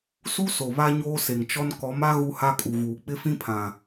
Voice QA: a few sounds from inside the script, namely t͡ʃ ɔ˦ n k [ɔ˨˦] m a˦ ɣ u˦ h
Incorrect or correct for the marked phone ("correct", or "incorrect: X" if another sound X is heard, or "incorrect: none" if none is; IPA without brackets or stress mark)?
correct